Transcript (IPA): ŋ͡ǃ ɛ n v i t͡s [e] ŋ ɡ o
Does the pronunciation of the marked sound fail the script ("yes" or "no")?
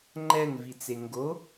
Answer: no